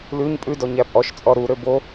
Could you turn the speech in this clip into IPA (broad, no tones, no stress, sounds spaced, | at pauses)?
l ʉ ɲ pʼ ʉ d ɔ ɲ æ pʼ ɔ ʃ t͡sʼ ɔ ɾ u ɾ ø b o